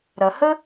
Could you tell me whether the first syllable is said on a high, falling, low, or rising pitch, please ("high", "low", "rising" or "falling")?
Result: low